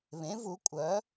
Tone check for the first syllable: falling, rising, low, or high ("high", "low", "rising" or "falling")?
rising